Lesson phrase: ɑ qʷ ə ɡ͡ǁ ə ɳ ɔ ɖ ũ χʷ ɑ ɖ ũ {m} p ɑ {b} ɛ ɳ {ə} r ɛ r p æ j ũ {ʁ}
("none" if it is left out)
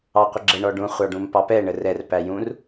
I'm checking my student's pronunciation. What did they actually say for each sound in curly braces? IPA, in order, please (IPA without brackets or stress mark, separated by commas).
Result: m, p, ə, r